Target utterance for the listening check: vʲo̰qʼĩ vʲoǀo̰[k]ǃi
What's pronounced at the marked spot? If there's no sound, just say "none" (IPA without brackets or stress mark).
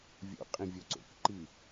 k